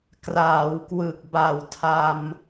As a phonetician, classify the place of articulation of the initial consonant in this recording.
velar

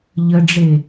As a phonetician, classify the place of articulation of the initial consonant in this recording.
palatal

